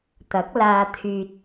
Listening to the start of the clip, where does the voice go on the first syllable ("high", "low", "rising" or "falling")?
rising